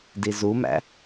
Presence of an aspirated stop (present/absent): absent